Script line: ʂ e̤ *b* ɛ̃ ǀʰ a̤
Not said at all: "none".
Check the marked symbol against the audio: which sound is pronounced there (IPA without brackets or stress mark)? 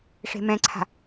m